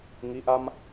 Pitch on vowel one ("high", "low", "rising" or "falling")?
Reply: rising